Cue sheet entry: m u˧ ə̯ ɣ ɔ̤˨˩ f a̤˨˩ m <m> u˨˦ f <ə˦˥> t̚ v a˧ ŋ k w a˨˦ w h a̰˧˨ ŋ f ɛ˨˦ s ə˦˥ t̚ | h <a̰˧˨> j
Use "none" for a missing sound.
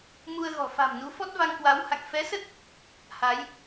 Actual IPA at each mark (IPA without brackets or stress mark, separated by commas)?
n, ɔ˦˥, a˨˦